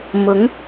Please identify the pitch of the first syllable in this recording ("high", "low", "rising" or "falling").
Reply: rising